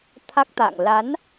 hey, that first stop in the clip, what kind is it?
aspirated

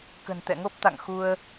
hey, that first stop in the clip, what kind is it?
plain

